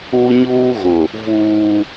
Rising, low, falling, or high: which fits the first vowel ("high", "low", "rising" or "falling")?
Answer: high